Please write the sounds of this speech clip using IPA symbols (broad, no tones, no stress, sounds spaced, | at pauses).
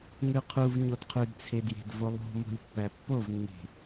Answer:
ŋ ʉ qʰ u v ɲ o d qʰ ʉ d t͡sʰ e d j e̤ d v o lˠ o̤ m o̤ lʲ pː æ pː o v nː e̤